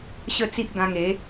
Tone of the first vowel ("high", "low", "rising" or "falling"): falling